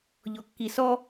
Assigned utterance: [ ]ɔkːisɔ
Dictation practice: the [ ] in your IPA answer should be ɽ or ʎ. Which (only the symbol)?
ʎ